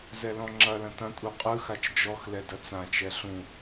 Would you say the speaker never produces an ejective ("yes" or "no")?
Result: no